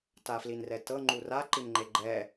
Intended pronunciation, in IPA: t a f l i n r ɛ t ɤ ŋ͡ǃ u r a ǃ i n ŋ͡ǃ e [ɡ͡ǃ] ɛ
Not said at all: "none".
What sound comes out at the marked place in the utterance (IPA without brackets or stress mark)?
ɡ͡ǃ